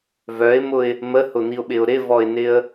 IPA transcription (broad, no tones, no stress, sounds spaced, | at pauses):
v œ ɪ̯ m ʊ ɪ̯ | m ə h ʊ n̪ i ʊ̯ ɓ ɪ ʊ̯ ɾ ɪ v ɔ ɪ̯ n ɪ ə̯